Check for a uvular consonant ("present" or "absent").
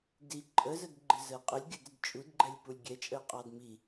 present